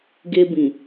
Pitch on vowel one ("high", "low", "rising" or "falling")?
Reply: high